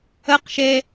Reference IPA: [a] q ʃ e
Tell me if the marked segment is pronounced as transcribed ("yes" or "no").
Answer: no